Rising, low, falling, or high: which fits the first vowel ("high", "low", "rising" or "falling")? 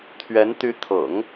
rising